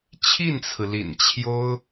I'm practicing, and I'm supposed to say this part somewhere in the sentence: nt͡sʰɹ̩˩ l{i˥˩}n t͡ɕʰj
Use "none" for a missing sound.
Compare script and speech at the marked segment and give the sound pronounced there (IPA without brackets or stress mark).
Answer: ḭ˨˩